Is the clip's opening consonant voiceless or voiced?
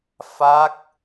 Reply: voiceless